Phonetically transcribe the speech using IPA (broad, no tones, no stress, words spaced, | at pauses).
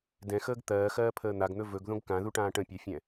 dɛ̃xəːɡ t̪ɜːxɜːpʰəː n̪aɡn̪ɵ vɵɡðõɡ kãðuʈãː ʈə̃pʲafʲɛ̃